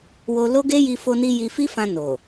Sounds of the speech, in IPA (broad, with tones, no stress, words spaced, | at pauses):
wo˧lo˦ɡe˦ ji˧fo˧ni˧ ji˧fi˦fã˧ no˨